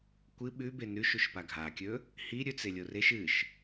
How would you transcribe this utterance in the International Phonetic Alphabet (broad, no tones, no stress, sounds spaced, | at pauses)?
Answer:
kʷ ɨ ɓ ʉ b e n ʉ ʃ u ʃ p a ɡʱ a kʲ ɵ | h i ɾʲ ɵ t͡s e lʲ o r e ʃ ɨ ʃ